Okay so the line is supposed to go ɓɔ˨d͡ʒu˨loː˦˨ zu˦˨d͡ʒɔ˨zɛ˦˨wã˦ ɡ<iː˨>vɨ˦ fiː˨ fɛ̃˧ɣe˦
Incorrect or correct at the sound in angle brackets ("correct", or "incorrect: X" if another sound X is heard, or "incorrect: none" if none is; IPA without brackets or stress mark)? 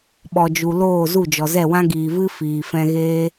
correct